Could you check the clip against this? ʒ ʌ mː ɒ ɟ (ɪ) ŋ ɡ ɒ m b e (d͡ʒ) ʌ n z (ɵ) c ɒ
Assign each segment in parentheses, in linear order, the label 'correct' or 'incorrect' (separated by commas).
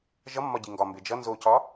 incorrect, correct, incorrect